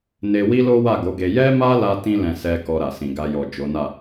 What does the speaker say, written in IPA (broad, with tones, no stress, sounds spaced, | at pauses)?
n e˧ w i˦ l o˦ w a˦˨ ɡ o˨˦ ɡ e˧ j ɛ˦ m a˦ l a˧ t ĩ˦ l ɛ̃˧ s ɛ˧ k ɔ˧ ɾ a˨ s ĩ˨ ɡ a˧ j ɔ˨ d͡ʒ o˨˦ n a˦˨